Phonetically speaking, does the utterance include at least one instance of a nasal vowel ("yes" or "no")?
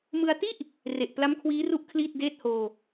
no